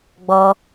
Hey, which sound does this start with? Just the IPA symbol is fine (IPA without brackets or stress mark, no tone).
ɡ͡b